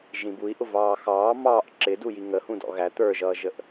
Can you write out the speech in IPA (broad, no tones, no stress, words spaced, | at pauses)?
ʒĩbui̯ ʔʊvɑːxɑː mɑːʔ ǁɪduji ŋəhũdɔ̰ ɣæ t̪ə˞ʒʌːʒəʔ